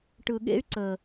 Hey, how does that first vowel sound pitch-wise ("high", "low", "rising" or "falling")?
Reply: low